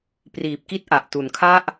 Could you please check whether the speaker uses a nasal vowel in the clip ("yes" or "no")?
no